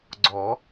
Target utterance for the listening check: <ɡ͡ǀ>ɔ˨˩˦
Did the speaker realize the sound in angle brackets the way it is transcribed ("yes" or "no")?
yes